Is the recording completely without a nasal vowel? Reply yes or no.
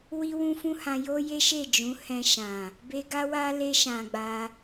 no